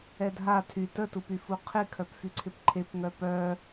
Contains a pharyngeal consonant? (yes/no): no